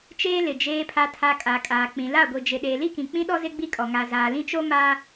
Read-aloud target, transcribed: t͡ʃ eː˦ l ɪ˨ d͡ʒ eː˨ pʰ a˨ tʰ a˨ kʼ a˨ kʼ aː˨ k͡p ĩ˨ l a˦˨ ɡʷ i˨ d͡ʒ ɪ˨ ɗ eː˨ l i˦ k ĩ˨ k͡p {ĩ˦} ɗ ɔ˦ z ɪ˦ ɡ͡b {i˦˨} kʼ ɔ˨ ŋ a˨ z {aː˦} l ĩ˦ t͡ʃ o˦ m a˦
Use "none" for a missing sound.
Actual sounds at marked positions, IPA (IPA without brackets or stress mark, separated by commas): ĩ˦, i˦, aː˨